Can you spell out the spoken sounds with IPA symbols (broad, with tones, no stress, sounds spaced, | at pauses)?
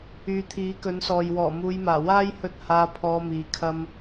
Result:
yː˨ t̪ʰ iː˨˥ k ɵ˨˥ n s ɔː˨ j w ɔː˨˩ m uː˨˧ j m aː˨˩ w aː˥ j h ɵ˧ t̚ h aː˧ pʰ ɔː˧ m iː˨˧ kʰ ɐ˧ m